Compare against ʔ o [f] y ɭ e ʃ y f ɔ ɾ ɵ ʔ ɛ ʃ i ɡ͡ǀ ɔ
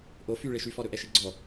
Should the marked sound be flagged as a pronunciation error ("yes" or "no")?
no